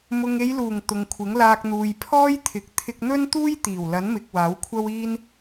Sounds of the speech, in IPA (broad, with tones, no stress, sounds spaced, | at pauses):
m ʊ˨ ŋ e˨˧ j l uː˨˩ ŋ t̪ ʊ˨ ŋ kʷʰ ɪ˨˥ ŋ l aː˧ k̚ n̪ uː˨ j pʰ ɔː˥ j t̪ʰ ɪ˨˥ k̚ t̪ʰ ɪ˧ k̚ n̪ ɵ˥ n t̪ uː˥ j t̪ iː˨˩ w l ɐ˨˥ n m ɪ˨ k̚ w aː˨˥ w kʷʰ ɐ˥ w iː˥ n